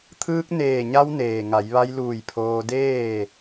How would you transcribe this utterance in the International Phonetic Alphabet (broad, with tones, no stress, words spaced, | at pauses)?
t̪ʰɯː˧k̚ neː˧˩ɲa˧w neː˩ŋa˩˧jʋa˧jluː˧˩j pʰoː˧deː˥˨